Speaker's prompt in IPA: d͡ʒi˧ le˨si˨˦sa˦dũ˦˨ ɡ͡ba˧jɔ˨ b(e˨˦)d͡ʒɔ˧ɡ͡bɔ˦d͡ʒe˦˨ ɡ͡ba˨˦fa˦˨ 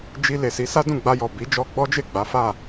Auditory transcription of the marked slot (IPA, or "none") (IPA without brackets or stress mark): i˨˦